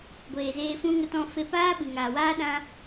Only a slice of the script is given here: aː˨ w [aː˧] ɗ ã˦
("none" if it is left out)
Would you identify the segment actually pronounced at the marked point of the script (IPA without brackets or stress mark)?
aː˦